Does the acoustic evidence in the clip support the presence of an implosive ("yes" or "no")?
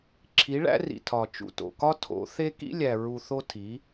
no